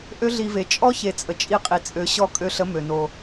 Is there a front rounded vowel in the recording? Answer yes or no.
yes